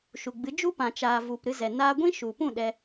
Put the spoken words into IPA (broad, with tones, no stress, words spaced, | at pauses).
ʃu˨ɡ͡bɨ˨˦ d͡ʒu˦pã˨ t͡ʃaː˨vu˨p ɾɨ˧zɛ˨ naː˧ɡʷĩ˦ʃu˨pũ˦˨ ɗɛ˧